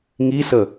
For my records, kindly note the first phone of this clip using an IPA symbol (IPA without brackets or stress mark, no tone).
ŋ